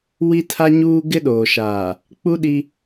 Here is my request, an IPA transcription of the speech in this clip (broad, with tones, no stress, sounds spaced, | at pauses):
w i˦ tʰ a˦ ɲ uː˦ ɡ ɪ˦ ɗ oː˨ ʃ aː˨ | k͡p u˦ ɗ i˦